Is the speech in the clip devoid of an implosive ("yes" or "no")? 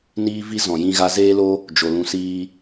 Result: yes